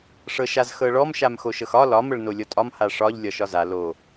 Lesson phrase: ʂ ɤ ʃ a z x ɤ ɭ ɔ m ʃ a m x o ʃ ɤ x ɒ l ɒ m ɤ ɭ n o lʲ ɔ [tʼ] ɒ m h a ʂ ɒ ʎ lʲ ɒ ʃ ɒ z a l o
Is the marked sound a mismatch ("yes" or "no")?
no